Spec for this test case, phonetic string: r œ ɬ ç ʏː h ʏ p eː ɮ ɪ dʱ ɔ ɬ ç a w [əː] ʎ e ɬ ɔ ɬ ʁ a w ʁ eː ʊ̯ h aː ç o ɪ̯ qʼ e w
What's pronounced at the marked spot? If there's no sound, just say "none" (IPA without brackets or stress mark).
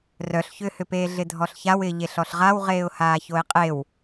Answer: ɪː